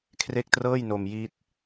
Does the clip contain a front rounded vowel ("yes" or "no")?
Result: no